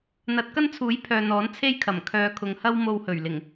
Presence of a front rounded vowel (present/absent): present